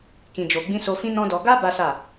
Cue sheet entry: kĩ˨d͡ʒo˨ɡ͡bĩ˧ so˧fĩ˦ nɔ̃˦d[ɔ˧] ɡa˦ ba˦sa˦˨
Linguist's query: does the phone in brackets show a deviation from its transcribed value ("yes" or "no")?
no